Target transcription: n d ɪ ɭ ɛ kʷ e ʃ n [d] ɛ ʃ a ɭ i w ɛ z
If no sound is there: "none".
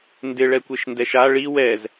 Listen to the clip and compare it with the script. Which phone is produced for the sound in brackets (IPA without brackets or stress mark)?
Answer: d